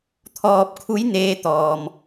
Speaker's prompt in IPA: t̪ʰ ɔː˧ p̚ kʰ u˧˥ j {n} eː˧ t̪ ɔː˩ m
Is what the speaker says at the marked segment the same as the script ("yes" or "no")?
yes